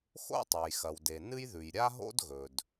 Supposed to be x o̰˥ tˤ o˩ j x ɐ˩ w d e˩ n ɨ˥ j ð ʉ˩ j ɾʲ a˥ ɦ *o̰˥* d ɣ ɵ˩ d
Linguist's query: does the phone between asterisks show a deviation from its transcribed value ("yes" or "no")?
no